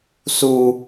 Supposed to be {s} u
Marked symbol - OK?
yes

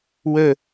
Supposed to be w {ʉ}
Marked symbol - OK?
no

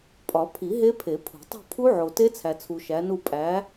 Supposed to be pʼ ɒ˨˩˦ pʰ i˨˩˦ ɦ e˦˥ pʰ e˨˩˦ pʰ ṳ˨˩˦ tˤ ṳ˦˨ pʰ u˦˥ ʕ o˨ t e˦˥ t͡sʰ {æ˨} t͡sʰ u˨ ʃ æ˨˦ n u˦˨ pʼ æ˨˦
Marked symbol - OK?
yes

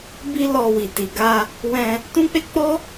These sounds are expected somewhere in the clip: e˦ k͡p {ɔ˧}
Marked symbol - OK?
no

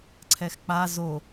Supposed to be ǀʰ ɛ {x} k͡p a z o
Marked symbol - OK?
yes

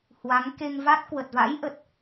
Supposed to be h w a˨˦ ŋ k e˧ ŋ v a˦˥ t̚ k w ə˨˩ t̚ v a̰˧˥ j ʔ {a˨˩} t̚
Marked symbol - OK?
no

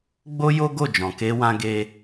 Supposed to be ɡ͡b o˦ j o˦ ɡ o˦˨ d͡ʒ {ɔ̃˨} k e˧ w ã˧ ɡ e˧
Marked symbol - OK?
yes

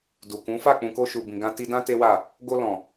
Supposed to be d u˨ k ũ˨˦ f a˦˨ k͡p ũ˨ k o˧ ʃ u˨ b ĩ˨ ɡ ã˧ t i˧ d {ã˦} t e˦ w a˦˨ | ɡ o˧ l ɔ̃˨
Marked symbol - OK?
yes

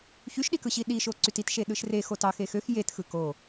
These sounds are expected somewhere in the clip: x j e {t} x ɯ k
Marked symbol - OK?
yes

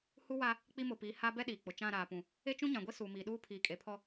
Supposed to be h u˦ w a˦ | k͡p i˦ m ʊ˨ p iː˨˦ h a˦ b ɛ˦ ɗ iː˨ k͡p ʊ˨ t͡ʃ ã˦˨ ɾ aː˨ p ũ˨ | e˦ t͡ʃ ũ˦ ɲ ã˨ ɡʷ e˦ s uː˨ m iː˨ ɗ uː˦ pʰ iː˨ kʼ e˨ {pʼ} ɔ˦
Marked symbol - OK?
no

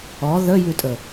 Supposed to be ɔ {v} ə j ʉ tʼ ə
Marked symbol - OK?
no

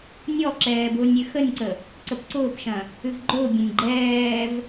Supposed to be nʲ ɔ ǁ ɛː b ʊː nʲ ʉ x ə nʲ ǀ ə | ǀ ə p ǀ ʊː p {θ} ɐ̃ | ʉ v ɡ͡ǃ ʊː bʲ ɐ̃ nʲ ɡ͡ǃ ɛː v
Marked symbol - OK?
no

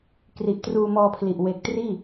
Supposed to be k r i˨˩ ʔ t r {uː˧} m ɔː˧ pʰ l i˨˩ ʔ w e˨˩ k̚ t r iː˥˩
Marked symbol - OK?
yes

